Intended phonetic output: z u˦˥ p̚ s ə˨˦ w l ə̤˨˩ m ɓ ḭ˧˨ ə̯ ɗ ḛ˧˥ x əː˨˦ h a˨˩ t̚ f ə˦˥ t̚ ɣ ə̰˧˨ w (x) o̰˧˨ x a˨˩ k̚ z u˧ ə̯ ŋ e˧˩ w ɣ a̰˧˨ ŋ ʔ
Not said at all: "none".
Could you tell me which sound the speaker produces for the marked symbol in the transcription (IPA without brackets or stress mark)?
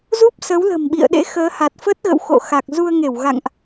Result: x